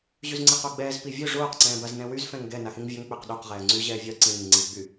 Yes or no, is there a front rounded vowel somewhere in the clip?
yes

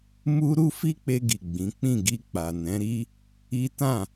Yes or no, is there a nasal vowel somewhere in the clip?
yes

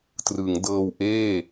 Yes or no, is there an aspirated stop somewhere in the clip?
no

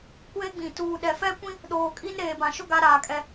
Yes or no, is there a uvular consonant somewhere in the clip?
no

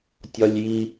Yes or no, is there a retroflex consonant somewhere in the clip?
no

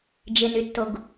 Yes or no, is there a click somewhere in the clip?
no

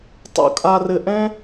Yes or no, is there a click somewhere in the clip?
no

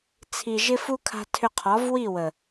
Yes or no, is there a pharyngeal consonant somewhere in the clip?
no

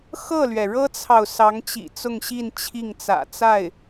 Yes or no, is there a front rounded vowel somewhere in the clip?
no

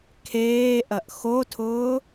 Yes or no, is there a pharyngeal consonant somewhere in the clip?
no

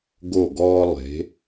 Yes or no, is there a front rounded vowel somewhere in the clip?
no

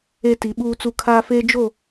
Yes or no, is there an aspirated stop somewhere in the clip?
yes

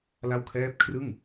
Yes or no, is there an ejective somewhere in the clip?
no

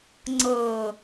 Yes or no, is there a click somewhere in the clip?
yes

